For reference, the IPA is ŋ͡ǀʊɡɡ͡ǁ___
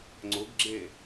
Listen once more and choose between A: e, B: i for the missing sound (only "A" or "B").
A